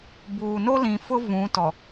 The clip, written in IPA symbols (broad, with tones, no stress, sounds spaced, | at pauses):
b uː˨ n o˦ l ĩ˨ f ʊ˦ v ũ˨˦ t ɔ˨